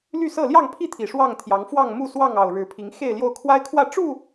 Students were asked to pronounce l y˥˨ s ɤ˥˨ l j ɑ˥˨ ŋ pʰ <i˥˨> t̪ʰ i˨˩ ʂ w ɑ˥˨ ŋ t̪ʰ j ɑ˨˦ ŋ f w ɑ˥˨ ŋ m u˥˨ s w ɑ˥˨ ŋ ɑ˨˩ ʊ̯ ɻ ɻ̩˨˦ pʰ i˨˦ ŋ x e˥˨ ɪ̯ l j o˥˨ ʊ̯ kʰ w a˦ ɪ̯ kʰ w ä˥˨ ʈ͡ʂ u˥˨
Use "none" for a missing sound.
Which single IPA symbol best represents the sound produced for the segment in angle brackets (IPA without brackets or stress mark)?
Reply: i˥˨